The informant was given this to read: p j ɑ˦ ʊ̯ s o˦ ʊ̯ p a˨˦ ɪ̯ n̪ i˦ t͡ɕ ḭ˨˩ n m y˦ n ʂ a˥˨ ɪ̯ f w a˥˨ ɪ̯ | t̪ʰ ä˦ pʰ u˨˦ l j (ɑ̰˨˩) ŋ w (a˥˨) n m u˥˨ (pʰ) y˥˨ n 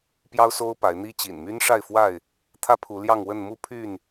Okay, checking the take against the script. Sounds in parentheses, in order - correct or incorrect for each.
incorrect, incorrect, correct

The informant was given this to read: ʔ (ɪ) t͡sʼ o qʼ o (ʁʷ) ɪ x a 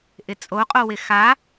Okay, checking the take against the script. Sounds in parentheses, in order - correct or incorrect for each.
correct, incorrect

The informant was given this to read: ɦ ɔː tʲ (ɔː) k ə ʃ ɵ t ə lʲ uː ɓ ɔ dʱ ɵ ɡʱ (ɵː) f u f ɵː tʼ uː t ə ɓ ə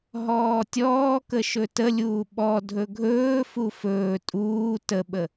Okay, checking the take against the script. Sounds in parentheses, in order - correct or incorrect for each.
correct, correct

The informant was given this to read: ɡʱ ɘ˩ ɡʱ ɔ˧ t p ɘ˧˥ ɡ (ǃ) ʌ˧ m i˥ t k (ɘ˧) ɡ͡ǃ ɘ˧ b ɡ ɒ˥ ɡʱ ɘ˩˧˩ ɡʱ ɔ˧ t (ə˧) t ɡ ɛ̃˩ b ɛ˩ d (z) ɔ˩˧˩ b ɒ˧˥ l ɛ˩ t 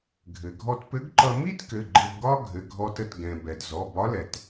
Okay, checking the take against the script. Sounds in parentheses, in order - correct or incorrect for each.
correct, incorrect, correct, correct

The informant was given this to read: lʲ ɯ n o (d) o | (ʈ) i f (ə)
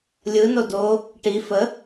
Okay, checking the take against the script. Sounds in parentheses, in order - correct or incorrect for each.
correct, correct, correct

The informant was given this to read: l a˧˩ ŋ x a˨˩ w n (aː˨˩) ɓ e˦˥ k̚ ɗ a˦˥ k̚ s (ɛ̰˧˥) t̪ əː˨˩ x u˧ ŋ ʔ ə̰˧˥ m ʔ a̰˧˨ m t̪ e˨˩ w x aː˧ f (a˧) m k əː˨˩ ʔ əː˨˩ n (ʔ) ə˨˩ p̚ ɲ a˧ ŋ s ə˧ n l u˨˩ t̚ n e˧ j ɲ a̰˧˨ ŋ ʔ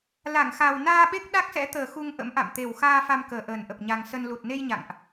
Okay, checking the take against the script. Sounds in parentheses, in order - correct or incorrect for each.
incorrect, correct, correct, correct

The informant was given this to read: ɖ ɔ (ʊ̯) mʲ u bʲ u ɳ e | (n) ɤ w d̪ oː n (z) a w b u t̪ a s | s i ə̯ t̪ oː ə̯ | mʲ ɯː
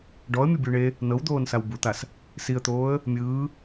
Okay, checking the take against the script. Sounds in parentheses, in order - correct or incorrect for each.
incorrect, correct, incorrect

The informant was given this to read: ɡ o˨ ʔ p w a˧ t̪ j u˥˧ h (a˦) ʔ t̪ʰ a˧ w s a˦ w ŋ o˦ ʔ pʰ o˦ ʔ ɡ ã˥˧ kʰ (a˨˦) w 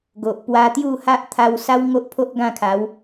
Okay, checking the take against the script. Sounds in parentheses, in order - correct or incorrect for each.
correct, correct

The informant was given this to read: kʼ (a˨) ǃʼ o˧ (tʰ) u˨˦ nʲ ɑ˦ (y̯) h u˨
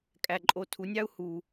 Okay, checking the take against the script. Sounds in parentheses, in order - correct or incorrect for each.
incorrect, correct, incorrect

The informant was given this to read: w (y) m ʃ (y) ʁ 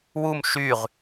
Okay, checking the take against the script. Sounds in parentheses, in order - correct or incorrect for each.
incorrect, correct

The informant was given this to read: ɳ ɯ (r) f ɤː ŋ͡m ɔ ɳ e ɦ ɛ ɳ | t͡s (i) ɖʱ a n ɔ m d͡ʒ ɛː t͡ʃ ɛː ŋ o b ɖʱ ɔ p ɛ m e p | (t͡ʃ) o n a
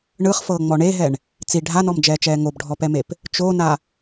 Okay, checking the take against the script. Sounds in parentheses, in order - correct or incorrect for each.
incorrect, correct, correct

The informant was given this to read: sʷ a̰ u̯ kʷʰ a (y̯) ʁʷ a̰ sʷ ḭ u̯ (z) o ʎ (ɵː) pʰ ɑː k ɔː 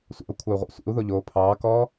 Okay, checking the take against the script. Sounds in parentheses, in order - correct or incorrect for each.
incorrect, incorrect, incorrect

